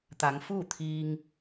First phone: t̪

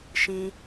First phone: ʃ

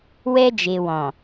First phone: w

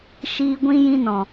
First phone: ʃ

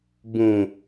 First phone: b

